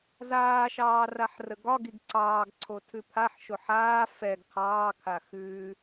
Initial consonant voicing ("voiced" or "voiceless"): voiced